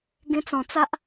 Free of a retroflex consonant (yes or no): yes